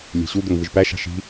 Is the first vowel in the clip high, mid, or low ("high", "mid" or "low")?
mid